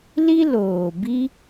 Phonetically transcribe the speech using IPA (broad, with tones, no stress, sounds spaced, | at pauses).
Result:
l i˦ l oː˨ b i˦